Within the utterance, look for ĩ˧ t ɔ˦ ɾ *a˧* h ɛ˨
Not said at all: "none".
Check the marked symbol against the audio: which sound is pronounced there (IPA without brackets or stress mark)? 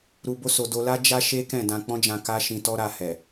a˧